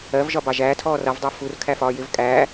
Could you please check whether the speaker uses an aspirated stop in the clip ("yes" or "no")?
yes